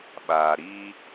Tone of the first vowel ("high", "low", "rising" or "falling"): low